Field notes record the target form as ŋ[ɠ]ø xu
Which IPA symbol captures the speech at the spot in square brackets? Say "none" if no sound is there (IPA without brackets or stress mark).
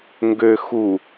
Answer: ɡ